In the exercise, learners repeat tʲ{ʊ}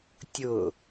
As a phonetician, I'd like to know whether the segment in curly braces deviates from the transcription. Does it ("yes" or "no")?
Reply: no